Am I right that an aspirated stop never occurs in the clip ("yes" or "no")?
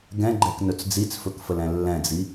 yes